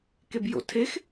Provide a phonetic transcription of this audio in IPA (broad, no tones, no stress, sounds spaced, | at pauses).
k e b j o̰ tʰ e x